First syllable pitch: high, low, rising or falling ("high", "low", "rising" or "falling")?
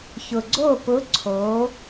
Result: low